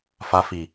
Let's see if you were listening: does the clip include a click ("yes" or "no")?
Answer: no